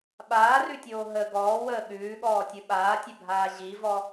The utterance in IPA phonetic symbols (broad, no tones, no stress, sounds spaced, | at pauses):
ɓ aː r ʉ tʲ oː ɦ ə ɡ ɔː w əː ɠ ʉː ɠ ɔː tʲ ɯ ɓ aː tʲ ɘ bʱ aː ʑ i v ɔ